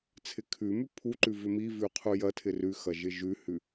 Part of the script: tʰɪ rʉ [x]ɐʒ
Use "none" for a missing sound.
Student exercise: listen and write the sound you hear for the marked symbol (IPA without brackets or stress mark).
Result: x